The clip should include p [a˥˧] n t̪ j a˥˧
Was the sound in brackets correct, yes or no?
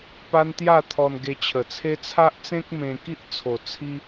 no